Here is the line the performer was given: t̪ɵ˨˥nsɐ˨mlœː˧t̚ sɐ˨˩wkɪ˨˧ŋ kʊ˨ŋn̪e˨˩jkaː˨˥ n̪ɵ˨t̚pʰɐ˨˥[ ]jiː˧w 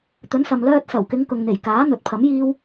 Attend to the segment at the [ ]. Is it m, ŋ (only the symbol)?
m